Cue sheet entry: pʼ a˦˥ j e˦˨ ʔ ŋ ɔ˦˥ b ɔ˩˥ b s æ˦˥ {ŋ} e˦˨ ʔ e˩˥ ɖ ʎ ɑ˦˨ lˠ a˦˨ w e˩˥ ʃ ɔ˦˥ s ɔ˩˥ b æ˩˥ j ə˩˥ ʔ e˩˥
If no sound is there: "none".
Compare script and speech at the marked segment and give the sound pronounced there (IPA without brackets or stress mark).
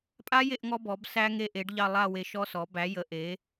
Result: ŋ